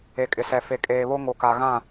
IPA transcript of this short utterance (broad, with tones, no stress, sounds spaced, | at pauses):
e˨ kʼ ɪ˨ s ɛ˨ f e˨ kʼ eː˨ β o˦ ŋ o˨ k a˨ ɣ ã˦˨